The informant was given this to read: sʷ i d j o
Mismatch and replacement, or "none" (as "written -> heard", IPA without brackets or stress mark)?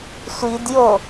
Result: none